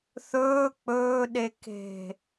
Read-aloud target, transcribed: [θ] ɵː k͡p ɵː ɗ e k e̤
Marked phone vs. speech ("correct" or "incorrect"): correct